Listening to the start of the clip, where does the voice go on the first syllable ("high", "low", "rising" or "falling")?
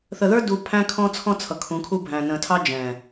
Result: low